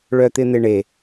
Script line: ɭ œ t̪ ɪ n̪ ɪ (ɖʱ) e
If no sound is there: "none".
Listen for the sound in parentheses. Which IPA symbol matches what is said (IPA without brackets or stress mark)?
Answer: ɳ